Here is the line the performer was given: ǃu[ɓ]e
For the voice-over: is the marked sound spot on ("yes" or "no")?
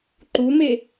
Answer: no